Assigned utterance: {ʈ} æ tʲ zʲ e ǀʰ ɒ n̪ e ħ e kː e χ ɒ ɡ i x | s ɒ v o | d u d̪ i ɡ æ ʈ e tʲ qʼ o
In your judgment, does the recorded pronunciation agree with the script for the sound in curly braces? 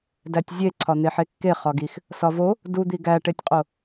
no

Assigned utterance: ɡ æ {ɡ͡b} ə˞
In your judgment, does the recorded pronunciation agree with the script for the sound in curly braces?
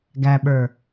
no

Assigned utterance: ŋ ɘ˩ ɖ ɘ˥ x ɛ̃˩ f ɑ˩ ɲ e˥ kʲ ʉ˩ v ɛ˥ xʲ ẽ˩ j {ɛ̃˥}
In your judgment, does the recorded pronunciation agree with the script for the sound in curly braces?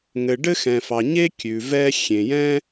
yes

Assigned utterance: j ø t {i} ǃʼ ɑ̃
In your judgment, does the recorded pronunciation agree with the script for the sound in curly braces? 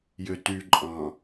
no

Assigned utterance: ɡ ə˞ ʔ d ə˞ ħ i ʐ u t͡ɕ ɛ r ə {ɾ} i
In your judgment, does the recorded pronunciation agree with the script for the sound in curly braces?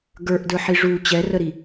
yes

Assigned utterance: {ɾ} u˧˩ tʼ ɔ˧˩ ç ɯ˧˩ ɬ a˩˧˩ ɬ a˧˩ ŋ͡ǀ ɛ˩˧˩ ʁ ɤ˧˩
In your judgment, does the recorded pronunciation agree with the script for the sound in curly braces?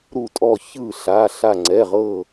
yes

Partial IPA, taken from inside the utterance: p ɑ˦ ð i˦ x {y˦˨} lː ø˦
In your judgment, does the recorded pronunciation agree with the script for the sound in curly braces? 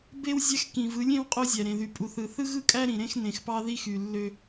no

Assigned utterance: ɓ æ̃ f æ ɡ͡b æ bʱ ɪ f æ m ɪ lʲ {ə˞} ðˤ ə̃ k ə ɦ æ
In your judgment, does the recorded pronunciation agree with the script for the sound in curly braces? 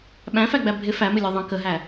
yes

